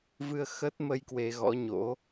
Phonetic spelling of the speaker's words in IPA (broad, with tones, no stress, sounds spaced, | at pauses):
v ɨ˧ ə̯ x ə˦˥ t̚ m ə˧ j k w e˧ ɣ ɔ̰˧˥ ɲ o̰˧˥